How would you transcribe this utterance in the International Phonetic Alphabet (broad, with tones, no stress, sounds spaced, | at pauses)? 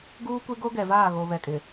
ɡ uː˦ kʷ e˦ ɡ o˦ ɡ ɛ˨ v aː˦˨ ɣ o˨ β ɛ˨ kʼ ɪ˨